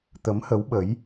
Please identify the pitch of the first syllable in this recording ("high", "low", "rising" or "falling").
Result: rising